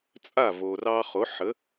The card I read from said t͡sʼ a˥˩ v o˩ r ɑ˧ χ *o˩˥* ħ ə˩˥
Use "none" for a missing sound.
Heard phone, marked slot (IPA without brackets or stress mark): o˩˥